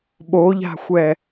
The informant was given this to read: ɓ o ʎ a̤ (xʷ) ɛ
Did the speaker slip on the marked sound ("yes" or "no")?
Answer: no